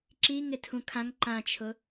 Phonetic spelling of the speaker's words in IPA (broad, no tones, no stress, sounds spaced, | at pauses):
ǁ i ŋ ɪ tʰ ũ kʰ ã ŋ ǃ ã t͡ʃʰ ʊ